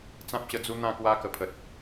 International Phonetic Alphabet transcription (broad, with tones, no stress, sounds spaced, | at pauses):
t͡s ã˦ p̚ ɕ ə˧ d͡z u˦ n̪ ã˥˧ k w a˦ k ə˨˩ pʰ ə˨ t̚